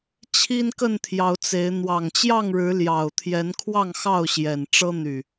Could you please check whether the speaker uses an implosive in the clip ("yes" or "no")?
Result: no